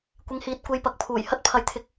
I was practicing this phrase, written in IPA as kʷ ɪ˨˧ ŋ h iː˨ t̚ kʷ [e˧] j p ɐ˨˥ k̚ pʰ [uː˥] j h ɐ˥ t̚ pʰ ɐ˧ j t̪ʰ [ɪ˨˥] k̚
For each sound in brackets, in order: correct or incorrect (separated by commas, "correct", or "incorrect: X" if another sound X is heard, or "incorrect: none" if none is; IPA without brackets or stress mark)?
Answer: correct, incorrect: uː˨˩, incorrect: ɪ˧